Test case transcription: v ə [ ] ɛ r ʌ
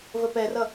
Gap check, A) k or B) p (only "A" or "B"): B